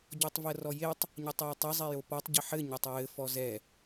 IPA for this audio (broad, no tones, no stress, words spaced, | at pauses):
ɟɔtˤvɜrɔjetˤ | ɲɜtˤjɛtˤɛ zˤɛjopɒtˤ ɟɘħɘ ɲɜtˤɹɘ fɔzɛ